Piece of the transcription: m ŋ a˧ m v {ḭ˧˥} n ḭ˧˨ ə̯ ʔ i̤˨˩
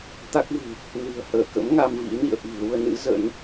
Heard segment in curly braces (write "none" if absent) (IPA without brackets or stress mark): ḭ˧˥